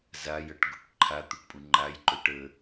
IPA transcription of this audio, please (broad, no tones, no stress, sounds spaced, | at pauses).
z a j ʌ ʈ ɡ u ʈ ǃʰ a t̪ u ʈ pʼ u ŋ͡ǃ a j ǃ ɵ ʈ ə